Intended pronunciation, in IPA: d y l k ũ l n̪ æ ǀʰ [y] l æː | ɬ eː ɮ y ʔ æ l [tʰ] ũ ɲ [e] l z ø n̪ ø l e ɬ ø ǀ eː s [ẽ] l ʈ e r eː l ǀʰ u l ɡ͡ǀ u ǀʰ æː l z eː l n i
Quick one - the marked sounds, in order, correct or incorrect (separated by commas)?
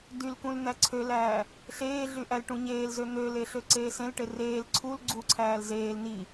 incorrect, incorrect, incorrect, correct